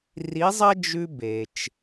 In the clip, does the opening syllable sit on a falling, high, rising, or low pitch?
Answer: rising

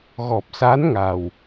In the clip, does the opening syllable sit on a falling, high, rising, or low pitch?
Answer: low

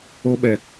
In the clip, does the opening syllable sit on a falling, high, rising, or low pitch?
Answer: high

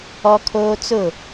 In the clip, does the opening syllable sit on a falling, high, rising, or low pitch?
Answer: high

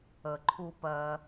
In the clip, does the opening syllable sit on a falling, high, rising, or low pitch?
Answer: low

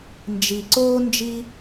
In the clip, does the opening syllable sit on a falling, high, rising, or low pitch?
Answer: low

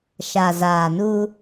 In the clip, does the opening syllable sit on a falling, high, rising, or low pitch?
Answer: low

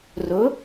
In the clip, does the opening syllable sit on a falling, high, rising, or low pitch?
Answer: rising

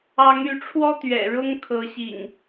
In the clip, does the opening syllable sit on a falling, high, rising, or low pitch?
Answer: rising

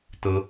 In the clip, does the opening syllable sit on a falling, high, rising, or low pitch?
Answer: high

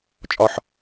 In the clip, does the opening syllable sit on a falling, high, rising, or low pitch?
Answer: low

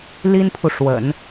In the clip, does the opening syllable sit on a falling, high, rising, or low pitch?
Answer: high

